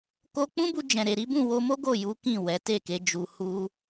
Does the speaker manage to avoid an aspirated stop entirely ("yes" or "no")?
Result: yes